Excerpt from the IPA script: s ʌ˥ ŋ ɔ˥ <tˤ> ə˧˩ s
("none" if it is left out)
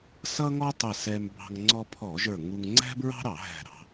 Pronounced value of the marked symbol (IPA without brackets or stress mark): tˤ